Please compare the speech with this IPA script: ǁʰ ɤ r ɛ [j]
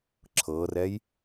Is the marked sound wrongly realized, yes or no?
no